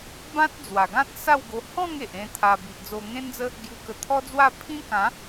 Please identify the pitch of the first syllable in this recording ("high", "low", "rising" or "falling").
high